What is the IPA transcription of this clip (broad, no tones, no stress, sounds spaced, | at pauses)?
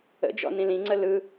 ə̰ d͡ʒ ɔ̰ n ĩ l ĩ ŋ͡ǀ ə l ɯ